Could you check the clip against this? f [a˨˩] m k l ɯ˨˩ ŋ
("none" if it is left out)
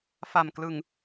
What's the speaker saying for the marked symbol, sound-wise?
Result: a˨˩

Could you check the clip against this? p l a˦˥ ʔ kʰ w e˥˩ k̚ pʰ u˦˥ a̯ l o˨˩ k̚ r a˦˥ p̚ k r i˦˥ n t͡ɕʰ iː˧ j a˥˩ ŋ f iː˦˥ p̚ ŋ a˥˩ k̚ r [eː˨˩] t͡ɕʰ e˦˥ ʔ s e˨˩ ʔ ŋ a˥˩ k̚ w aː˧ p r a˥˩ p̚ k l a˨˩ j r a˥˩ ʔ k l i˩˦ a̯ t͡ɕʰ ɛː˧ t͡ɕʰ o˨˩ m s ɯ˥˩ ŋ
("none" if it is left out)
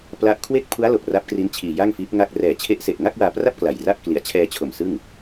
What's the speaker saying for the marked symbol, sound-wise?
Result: ɛː˨˩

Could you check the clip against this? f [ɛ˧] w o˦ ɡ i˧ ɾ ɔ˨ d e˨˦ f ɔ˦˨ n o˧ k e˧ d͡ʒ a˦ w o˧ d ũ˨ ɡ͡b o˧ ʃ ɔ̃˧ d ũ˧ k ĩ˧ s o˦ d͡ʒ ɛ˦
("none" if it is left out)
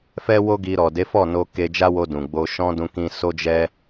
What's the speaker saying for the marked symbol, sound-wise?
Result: ɛ˦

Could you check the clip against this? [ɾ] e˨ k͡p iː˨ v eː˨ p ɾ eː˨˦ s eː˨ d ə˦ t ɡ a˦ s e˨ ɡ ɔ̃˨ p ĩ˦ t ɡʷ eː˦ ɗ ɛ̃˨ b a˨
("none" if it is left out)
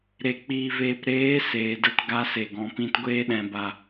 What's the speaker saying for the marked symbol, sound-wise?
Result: ɾ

